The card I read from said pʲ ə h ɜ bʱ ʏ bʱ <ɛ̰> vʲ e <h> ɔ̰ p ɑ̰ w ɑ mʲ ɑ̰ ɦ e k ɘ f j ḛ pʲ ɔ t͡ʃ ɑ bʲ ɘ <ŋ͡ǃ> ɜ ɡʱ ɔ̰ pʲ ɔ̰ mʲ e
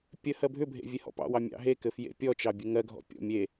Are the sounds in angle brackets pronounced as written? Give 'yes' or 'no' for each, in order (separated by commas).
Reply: no, yes, no